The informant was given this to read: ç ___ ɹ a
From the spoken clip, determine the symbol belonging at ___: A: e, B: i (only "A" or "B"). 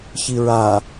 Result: B